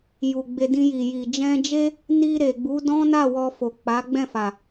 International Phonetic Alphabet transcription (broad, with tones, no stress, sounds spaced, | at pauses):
j u˨ ɡ͡b e˧ d ĩ˧ j i˨ j i˨ d͡ʒ ɛ̃˧ d͡ʒ e˦ | n i˧ ɾ e˨ ɡ͡b u˨˦ d ɔ̃˦ n a˦˨ w ɔ˧ f o˨ k͡p a˨˦ ɡ͡b ɛ̃˦˨ f a˨